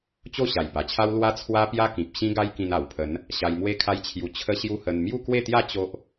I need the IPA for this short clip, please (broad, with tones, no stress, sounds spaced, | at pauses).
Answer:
t͡ɕ o˥˧ ɕ a˨˩ j b a˨˩ t͡ɕʰ a˦ w l w a˦ t͡sʰ w a˦ p j a˦ k ĩ˨ p̚ ɕ ĩ˦ ɡ a˦ j k ĩ˧ n a˨˩ w pʰ ə˨˦ n | ɕ a˧ j m w e˦ kʰ a˦ j t͡ɕʰ j u˧ t͡ɕʰ ə˦ ɕ j u˦ h ə˧ n m j u˥˧ k w e˥˧ t̪ j a˥˧ t͡ɕ o˦ ʔ